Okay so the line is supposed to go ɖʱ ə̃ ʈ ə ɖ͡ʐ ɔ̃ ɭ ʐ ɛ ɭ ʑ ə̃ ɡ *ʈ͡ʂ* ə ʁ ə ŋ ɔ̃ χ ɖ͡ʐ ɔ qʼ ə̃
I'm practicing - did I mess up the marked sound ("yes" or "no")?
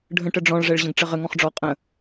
no